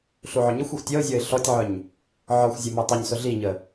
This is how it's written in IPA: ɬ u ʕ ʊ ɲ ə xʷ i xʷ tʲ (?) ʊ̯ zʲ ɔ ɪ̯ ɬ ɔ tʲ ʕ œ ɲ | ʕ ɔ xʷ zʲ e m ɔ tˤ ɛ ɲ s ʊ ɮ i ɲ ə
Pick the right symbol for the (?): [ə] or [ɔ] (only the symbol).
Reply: ɔ